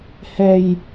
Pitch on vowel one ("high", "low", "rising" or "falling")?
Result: low